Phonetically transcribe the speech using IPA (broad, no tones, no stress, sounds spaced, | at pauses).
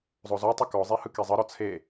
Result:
zˤ o z ɔ tˤ ɯ k ɔ zˤ e h ɯ k ɛ zˤ ɤ ɾ ɔ t͡sʰ e